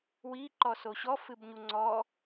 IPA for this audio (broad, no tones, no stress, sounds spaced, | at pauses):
w i ǃ ɔ s o ɕ ɔ f ɨ b ɲ u ŋ͡ǀ ɔ